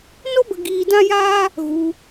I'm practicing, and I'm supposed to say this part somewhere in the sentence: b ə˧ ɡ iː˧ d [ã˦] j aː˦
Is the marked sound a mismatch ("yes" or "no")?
no